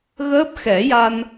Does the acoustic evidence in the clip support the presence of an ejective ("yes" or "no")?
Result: no